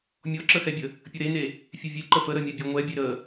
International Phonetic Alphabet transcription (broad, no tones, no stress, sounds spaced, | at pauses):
mʲ ɔ ǁ ə x ɛ bʲ ə | pʲ ə ɾ e n e | fʲ e vʲ e ǃ ə f ə ɾ ə mʲ ɛ bʲ ɔ ŋʷ ɛ bʲ e ɾ ə